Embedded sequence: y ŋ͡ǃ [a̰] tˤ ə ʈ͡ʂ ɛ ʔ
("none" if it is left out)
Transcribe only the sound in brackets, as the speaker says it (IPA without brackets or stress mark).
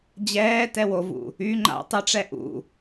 a̰